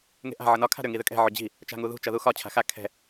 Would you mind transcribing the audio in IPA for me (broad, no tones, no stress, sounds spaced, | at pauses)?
ŋ e̤ ʔ a̤ ʕ ʌ n ɒ kʰ a̤ ɾ ʏ ŋ i ð ʏ kʼ ɛ̤ ʕ ʏ d͡ʑ i̤ | t͡ʃ a̤ ŋ u ð ṳ t͡ʃ ʌ ð u x ɒ t͡ɕʰ a̤ x a kʰ ɛ̤